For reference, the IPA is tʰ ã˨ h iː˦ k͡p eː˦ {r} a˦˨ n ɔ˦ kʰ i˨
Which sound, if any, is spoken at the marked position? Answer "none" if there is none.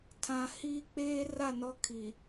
r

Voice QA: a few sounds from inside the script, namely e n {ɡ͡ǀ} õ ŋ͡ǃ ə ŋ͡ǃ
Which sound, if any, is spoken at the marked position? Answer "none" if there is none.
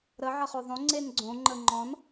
ɡ͡ǀ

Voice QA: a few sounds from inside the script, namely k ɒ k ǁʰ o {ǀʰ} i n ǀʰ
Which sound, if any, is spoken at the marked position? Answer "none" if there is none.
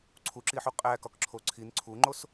ǀʰ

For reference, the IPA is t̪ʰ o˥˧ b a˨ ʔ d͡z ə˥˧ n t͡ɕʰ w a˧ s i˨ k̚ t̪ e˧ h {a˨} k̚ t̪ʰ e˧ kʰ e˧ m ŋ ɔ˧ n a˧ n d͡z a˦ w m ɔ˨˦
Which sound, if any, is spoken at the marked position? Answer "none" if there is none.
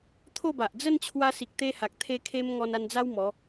a˨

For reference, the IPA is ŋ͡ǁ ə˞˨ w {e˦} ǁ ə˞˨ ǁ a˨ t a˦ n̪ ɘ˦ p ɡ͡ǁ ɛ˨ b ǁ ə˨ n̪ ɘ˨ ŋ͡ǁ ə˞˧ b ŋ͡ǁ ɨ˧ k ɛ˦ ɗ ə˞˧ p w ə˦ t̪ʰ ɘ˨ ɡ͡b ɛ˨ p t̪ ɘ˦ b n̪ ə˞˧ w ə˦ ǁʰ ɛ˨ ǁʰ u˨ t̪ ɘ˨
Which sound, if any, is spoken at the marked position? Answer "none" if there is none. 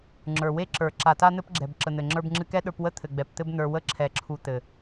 e˦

